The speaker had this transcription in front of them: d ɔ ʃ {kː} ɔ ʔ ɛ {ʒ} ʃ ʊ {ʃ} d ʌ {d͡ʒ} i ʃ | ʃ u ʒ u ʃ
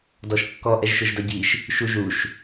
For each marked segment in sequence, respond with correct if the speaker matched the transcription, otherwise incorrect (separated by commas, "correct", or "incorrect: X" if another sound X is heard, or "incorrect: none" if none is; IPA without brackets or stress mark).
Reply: correct, correct, incorrect: ʒ, incorrect: ɟ